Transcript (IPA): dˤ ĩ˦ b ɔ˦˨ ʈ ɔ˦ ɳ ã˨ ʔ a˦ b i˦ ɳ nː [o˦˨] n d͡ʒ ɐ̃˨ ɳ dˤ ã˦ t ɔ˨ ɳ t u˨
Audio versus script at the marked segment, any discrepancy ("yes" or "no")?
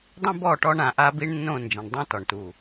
yes